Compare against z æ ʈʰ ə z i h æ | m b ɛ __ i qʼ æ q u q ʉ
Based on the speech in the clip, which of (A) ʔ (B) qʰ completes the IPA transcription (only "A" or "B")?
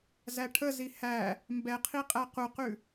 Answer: B